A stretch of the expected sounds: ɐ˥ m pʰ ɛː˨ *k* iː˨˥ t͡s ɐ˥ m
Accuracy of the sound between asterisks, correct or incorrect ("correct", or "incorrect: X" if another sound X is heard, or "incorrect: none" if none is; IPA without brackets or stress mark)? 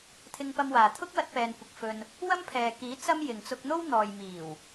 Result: correct